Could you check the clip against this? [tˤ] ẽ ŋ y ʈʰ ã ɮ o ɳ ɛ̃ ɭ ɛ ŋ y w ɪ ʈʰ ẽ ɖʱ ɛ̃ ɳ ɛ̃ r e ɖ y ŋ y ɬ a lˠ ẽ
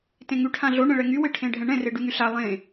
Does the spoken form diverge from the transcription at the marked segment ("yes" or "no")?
yes